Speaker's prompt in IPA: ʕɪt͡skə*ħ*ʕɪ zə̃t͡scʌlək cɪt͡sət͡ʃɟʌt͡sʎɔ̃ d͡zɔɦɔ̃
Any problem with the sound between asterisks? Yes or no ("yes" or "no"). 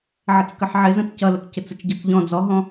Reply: no